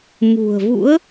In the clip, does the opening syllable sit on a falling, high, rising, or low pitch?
low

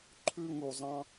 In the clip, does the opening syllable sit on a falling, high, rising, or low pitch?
high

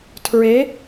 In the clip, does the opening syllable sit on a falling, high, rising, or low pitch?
rising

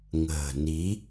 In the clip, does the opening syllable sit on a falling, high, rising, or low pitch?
low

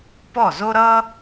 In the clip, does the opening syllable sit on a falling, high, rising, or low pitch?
falling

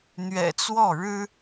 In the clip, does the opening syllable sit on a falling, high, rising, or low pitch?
low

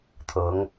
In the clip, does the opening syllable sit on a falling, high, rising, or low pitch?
rising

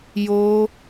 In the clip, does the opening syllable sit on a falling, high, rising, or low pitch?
high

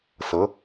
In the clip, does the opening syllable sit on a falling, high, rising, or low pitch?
rising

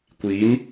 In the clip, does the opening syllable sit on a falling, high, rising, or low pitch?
rising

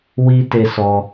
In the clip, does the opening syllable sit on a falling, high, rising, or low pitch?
high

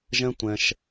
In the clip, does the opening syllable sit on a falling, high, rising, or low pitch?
high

